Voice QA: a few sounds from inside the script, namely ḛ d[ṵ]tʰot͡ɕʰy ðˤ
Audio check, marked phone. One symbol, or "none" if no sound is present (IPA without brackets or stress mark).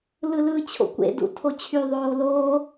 ṵ